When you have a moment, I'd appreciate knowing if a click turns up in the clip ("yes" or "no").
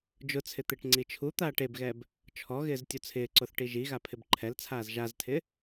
yes